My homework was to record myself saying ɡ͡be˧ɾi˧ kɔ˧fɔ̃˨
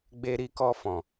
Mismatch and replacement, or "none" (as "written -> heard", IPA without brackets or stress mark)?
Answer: none